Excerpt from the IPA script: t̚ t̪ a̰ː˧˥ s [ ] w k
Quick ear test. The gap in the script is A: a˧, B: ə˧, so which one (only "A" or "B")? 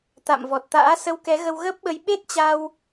B